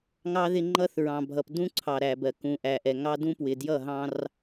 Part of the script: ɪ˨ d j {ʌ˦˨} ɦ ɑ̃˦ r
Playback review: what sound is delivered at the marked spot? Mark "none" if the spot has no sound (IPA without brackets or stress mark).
ʌ˦˨